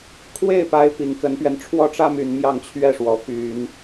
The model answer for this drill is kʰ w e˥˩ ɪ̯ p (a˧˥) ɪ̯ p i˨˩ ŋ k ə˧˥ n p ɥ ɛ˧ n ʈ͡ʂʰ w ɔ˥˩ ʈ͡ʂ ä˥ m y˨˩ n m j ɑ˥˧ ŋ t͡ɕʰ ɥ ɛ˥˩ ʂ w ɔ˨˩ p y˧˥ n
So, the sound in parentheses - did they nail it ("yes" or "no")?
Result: yes